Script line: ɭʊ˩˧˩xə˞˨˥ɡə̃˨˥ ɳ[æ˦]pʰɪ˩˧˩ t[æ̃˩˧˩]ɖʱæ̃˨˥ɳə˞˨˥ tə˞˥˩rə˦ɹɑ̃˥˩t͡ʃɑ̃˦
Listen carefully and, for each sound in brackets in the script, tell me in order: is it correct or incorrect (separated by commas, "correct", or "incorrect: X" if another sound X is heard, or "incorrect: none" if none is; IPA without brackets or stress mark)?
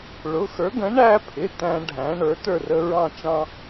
correct, incorrect: æ̃˦